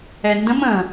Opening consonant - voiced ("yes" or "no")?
yes